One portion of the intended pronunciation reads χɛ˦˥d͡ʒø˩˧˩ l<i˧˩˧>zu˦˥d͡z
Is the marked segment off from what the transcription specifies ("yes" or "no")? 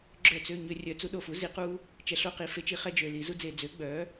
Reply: no